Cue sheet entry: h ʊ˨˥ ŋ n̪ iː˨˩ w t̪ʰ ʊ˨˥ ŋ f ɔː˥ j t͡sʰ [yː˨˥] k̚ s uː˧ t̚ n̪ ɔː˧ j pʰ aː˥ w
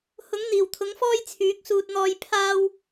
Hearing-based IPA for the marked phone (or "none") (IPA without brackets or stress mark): yː˨˥